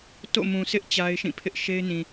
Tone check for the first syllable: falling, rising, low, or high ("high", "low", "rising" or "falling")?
falling